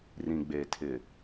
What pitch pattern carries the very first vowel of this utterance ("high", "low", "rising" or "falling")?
low